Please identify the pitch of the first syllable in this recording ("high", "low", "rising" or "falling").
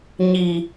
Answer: low